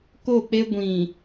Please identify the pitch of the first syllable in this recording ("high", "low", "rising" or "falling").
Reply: falling